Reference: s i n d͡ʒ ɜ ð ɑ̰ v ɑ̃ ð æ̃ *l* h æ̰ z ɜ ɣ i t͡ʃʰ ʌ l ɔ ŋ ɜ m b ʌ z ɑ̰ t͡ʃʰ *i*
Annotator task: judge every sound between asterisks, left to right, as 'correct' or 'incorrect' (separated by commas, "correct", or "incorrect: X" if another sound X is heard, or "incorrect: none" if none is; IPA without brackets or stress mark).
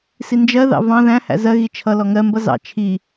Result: incorrect: none, correct